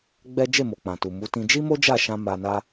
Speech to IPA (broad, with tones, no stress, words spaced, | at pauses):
ɡ͡bɛ˦ d͡ʒe˦˨mo˨k͡pã˨tu˨ mu˨˦tĩ˧ d͡ʒi˦mo˦d͡ʒa˦˨ʃã˧ ma˧na˦